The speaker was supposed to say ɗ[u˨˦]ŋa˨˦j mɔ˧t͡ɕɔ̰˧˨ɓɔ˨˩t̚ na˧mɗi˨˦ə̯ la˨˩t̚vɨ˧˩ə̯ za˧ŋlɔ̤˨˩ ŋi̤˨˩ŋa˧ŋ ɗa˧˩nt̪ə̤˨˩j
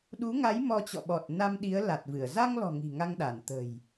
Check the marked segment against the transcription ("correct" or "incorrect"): correct